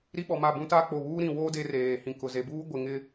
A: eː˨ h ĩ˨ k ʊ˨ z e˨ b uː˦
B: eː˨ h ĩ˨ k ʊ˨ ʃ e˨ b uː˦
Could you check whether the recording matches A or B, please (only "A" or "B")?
A